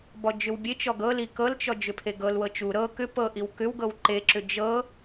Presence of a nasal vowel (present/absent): absent